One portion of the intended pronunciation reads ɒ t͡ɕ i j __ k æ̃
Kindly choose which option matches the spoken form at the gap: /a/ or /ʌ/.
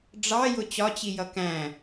ʌ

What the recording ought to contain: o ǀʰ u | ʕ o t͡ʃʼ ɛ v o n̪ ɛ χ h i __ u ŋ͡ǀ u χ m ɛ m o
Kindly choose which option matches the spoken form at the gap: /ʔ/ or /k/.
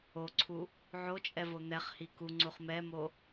k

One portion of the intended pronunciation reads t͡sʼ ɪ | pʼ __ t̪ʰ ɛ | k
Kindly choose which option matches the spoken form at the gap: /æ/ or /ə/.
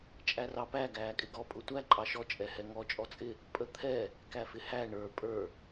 ə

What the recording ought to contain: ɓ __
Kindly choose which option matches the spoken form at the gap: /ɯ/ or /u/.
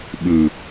ɯ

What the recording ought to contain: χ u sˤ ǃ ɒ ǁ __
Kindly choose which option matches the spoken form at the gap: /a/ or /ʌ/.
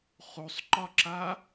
a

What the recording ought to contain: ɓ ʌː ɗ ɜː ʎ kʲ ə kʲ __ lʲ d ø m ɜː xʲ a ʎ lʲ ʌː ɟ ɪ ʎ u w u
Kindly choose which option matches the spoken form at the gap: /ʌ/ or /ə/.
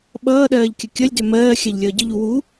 ʌ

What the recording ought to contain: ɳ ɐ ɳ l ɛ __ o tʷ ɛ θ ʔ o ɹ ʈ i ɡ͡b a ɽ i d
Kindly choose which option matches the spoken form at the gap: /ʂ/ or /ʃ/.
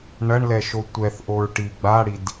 ʃ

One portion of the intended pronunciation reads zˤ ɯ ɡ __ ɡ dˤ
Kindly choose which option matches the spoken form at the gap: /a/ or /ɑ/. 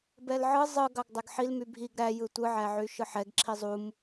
ɑ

